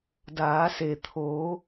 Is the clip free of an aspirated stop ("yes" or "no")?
no